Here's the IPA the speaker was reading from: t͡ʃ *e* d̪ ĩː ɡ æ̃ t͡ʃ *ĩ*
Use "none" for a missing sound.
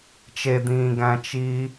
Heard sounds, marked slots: e, i

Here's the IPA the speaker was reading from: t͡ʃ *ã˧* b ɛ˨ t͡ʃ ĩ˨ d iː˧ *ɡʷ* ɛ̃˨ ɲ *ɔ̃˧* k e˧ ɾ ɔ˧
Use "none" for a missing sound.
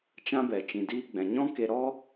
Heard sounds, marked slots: ã˦, ɡ͡b, ɔ̃˦

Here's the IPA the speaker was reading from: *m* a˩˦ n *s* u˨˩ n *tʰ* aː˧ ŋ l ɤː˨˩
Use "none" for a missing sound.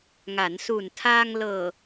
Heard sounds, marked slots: ŋ, s, tʰ

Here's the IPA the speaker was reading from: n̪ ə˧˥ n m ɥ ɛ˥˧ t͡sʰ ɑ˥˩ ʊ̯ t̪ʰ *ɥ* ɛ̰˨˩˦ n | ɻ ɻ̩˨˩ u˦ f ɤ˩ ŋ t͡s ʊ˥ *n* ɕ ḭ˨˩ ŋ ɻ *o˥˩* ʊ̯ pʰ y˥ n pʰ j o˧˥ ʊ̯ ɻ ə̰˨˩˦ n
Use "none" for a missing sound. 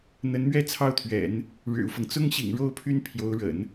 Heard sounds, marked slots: ɥ, ŋ, o˥

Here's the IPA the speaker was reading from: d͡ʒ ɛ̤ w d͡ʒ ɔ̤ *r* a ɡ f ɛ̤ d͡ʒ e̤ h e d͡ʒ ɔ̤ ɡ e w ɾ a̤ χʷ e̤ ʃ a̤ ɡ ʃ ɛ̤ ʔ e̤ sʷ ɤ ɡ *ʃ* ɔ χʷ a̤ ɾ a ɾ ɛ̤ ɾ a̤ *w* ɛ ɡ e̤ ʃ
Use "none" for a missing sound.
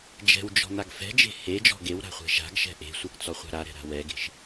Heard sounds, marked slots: n̪, t͡s, w

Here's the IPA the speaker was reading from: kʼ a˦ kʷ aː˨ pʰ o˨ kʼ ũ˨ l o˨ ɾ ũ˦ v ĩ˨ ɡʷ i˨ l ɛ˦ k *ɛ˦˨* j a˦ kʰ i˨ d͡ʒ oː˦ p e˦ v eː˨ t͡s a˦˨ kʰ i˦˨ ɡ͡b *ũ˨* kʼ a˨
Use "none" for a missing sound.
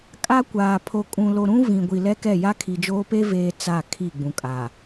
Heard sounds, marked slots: ɛ˦˨, ũ˨

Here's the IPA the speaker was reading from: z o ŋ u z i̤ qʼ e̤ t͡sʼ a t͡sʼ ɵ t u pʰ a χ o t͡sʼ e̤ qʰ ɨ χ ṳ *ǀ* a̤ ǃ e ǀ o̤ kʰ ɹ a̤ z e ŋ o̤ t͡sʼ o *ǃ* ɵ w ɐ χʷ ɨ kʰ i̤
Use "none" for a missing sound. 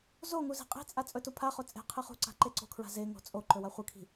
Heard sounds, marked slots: ǀ, ǃ

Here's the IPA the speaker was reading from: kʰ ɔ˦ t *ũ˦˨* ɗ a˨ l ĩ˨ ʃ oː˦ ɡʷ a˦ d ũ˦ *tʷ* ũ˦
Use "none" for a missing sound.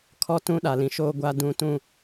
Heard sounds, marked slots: ũ˦, t

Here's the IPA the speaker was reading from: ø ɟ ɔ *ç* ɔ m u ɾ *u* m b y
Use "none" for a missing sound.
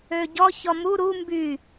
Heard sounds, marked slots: ç, u

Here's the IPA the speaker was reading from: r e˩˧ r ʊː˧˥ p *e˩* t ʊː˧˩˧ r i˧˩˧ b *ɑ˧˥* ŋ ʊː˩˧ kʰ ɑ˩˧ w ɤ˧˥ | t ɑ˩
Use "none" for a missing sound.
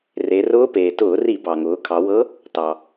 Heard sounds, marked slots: eː˩, ɑ˩

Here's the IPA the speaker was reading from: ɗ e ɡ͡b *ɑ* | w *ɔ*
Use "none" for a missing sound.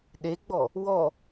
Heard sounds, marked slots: ɔ, ɔ

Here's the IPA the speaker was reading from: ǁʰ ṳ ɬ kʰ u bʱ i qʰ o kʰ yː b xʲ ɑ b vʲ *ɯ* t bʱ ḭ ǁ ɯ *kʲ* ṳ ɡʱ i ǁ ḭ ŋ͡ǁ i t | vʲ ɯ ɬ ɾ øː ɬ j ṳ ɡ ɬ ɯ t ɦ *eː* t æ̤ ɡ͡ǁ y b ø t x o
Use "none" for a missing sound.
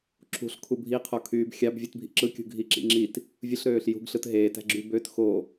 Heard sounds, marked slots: ɯ, kʲ, eː

